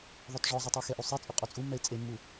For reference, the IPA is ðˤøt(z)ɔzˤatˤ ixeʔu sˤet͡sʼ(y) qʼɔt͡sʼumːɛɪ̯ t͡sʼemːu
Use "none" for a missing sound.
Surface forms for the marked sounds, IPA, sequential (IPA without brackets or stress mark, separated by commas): ʐ, y